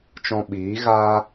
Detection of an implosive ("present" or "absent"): present